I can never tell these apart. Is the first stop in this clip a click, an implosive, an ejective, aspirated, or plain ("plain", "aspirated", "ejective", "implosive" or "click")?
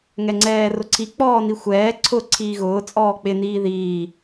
click